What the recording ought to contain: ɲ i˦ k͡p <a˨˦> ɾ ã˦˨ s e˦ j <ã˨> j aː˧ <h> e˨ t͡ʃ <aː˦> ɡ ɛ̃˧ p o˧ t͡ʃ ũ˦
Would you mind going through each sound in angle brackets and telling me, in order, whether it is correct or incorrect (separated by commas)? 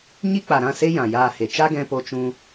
incorrect, correct, correct, incorrect